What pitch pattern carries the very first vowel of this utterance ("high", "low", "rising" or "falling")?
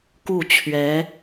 falling